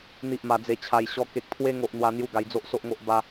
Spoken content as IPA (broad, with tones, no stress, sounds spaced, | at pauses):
n̪ i˦ ʔ m a˧ d͡z e˧ t͡ɕʰ a˧ j ɕ ɔ˧ k e˦ k̚ t̪ʰ w e˦ ŋ o˦ ʔ n̪ w a˦ n̪ j u˦ ɡ a˧ j d͡z o˦ ʔ s o˦ ʔ ŋ o˦ ʔ b a˦